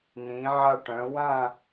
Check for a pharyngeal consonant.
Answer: present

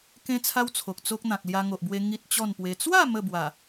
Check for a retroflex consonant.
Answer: absent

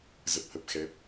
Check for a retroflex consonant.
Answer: absent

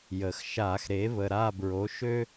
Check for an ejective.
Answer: absent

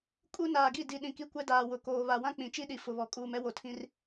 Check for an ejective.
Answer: present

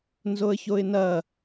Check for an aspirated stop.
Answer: absent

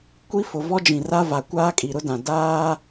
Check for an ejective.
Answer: present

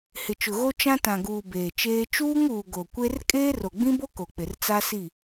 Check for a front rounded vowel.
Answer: absent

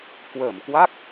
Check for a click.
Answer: absent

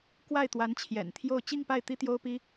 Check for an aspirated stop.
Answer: present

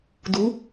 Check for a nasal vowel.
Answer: absent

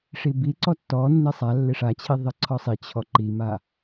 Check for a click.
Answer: present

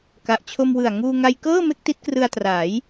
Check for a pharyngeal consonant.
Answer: absent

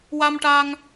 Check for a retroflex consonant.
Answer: present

